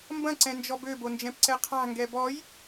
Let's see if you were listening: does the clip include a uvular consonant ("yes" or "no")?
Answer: yes